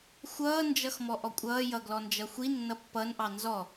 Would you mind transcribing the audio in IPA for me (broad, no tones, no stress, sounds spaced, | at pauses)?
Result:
xʷ ʌː n d͡ʒ ʌ x m ɔ ʔ ɔ kʷʼ ʌː j ʌ ɡ l ɔ n d͡ʒ ʌ xʷ i nː ʌ pː ʌ n ʔ ɑ n z ɔ